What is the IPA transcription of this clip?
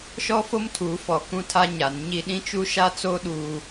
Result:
ʃɔ˦fo˦mtʰuː˨˦fɔ˨ kũ˦tʰa˦ ɲa˨˦nɲi˦ ɗĩ˦t͡ʃu˦ʃa˦t͡so˦ ɗuː˦

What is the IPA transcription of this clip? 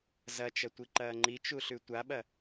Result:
zɐt͡ʃɐ tʷiǃɐːŋ͡ǃit͡ʃu ɬʉtʷaɓɐ

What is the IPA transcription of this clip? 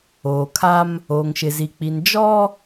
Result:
oː˨kʰa˦m | oː˨ŋʃɪ˨zi˨k͡pi˨n d͡ʒɔ˦

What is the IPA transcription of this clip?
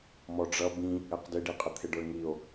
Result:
mɔɖ͡ʐʌ bĩ | ɛqdɪɖiqʼə t̪ʰɪɖə˞ŋio̯

